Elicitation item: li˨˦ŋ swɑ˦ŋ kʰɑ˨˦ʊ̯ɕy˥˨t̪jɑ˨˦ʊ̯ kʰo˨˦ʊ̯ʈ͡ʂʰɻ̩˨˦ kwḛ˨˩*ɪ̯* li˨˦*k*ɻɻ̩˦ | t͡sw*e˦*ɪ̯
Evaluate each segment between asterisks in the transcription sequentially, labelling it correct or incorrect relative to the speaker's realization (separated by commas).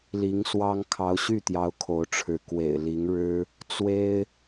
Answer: correct, incorrect, correct